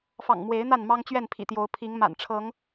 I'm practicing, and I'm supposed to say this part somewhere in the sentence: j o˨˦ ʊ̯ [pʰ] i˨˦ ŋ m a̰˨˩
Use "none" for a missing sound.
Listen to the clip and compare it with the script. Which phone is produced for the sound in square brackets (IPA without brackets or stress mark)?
pʰ